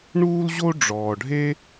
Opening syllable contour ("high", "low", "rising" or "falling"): high